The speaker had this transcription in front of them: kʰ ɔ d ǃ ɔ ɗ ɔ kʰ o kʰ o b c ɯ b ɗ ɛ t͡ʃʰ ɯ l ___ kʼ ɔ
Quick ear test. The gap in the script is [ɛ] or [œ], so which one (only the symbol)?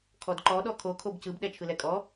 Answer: ɛ